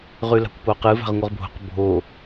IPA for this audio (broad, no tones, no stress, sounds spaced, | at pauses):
ʁ ʉ l a̤ kʷ p o q ɨ v a̤ ʁ ŋʷ ɨ ʁ bʱ o̤ q bʱ o